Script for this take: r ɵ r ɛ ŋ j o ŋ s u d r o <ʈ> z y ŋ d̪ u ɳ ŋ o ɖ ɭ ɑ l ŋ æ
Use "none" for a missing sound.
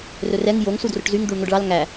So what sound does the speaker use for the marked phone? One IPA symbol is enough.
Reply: ʈ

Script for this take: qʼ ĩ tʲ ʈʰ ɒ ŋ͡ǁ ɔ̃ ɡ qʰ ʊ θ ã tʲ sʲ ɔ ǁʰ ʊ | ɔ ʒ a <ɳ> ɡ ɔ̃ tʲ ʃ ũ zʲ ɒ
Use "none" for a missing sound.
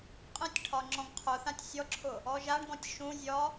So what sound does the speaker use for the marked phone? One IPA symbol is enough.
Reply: ɳ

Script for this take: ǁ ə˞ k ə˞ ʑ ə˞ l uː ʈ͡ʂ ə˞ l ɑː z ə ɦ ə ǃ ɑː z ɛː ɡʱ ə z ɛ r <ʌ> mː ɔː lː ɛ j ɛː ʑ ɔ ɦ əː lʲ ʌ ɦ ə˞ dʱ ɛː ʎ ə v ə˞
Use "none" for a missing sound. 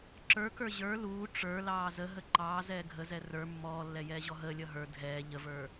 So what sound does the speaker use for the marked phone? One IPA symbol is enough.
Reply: ə˞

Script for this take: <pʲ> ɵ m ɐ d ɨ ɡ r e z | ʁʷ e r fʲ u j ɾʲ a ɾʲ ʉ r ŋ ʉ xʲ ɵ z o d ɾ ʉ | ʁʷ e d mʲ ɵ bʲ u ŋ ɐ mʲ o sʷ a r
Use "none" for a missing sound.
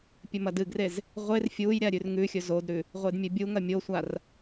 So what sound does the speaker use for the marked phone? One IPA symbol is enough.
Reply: pʲ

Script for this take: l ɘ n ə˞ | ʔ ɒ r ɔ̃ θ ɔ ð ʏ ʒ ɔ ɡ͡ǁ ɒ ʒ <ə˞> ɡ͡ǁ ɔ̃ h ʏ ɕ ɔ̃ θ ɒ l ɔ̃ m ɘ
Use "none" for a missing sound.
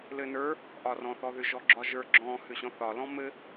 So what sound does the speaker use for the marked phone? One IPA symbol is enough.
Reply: ə˞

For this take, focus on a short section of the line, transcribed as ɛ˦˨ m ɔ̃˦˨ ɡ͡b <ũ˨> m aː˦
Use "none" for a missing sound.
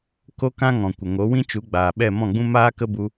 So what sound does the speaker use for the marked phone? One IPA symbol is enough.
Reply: ũ˦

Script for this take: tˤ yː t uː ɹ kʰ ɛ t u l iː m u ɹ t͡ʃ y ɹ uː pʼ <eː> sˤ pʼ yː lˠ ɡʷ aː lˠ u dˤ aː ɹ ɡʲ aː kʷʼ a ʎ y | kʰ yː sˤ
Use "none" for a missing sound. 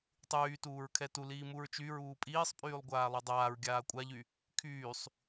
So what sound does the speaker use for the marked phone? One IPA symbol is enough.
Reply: iː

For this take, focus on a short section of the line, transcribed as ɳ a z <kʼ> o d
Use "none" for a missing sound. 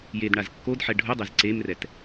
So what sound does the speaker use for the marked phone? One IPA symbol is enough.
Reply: kː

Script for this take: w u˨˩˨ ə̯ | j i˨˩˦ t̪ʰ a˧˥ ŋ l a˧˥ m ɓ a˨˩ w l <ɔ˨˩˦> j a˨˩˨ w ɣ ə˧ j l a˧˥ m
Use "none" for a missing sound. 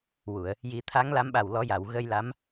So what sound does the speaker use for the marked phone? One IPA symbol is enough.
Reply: ɔ˨˩˦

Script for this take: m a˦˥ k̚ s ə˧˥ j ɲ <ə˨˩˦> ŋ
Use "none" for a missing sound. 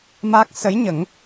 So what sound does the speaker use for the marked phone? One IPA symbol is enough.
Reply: ə˨˩˦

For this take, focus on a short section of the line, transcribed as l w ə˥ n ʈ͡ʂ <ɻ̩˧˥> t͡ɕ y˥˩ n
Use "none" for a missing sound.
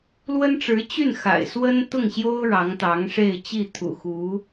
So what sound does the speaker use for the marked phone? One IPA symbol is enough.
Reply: ɻ̩˧˥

